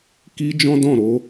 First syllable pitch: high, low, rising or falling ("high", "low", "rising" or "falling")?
high